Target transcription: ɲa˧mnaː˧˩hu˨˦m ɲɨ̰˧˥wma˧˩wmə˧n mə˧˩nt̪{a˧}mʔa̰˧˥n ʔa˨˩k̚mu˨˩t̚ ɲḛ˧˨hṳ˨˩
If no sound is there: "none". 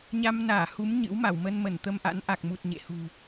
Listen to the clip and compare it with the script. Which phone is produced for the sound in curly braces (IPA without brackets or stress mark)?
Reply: ə˧